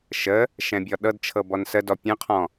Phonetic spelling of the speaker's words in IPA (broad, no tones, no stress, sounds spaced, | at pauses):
ʃ ə | ʃ ɛ̃ bʲ ɔ ɗ ɤ d t͡ʃʰ ɤ b ɔ n s ə d ɔ pʲ ə̃ qʰ ɔ̃